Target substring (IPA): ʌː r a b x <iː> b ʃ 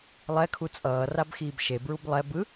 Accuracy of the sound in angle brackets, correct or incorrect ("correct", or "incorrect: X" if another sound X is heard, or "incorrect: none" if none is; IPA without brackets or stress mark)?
correct